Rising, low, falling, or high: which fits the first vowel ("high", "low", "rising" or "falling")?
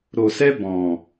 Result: low